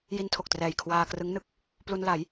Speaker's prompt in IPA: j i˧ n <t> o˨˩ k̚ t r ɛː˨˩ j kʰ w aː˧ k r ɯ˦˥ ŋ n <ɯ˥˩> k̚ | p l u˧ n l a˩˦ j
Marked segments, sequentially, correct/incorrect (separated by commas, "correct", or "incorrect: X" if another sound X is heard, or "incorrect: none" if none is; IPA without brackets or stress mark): incorrect: tʰ, correct